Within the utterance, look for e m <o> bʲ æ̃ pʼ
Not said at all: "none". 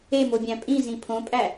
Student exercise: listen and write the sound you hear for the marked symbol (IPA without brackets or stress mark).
o